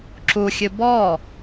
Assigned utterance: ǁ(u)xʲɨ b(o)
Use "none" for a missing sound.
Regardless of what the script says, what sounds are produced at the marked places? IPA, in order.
u, ɔ

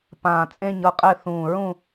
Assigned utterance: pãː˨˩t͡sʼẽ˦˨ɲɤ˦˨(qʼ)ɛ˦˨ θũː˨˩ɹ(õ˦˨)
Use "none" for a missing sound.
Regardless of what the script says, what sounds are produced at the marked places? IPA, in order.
qʼ, ũ˦˨

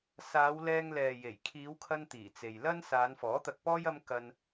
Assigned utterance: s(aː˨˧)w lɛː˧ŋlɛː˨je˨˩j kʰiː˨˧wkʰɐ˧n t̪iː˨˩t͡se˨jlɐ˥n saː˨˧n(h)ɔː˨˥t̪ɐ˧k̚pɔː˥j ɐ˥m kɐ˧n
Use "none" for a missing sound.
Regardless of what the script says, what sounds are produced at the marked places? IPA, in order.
aː˨˧, f

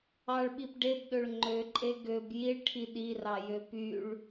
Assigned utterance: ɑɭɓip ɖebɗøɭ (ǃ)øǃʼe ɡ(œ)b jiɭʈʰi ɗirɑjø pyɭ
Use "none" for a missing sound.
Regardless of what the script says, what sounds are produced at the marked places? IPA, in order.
ŋ͡ǃ, ø

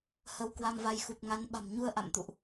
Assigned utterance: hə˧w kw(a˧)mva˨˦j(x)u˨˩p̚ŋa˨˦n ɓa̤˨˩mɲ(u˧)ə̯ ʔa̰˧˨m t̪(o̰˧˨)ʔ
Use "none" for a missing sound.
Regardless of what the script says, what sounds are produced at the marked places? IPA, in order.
a˧, x, u˧, ṵ˧˨

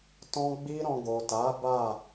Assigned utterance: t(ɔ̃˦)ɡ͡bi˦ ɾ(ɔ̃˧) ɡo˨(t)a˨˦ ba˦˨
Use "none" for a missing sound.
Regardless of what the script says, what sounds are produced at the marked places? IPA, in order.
ɔ̃˦, ɔ̃˧, t

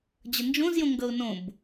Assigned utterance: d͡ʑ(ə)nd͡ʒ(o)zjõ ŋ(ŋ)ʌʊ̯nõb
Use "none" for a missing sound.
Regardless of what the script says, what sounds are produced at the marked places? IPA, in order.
ə, õ, ɡ

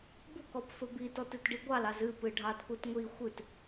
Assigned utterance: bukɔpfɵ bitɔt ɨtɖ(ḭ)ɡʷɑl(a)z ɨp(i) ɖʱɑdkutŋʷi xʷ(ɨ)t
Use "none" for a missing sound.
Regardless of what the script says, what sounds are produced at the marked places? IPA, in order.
i, ɑ, ɨ, ɨ

